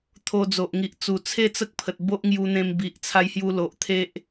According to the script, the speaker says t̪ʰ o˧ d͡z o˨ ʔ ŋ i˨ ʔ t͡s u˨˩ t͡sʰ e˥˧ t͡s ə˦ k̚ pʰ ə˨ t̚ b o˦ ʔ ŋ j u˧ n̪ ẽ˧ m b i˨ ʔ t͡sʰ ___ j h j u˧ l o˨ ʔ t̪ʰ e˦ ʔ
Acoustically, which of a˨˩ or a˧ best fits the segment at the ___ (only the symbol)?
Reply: a˧